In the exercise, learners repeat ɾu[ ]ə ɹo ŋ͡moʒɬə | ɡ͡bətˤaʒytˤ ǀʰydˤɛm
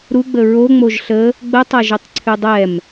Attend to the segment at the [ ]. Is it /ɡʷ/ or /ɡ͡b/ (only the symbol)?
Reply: ɡ͡b